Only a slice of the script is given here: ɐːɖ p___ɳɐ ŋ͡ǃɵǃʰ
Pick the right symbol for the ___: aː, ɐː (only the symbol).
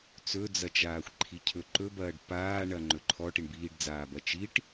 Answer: aː